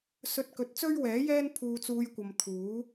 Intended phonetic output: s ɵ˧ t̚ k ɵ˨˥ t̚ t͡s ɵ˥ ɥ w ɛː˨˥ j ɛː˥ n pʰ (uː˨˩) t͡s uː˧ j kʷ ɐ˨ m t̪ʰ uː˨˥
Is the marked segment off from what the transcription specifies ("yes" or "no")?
yes